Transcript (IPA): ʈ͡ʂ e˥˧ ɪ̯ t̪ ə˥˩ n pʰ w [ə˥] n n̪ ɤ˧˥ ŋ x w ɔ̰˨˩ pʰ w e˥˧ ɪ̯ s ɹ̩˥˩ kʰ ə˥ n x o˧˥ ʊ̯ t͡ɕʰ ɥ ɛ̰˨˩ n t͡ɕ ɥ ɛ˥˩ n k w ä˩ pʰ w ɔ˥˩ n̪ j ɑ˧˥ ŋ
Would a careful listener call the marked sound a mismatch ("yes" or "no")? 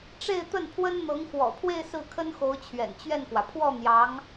no